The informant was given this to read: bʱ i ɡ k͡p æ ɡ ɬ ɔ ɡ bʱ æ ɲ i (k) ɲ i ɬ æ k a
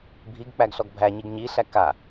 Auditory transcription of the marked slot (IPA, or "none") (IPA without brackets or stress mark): ɡ